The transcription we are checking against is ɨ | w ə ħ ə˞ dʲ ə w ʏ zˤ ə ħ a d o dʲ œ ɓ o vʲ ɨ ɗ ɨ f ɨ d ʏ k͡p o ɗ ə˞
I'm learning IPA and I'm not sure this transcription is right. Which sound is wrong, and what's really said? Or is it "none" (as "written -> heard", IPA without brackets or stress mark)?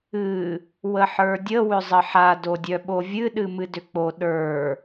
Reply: f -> m